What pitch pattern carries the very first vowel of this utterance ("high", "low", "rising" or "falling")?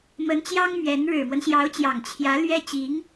rising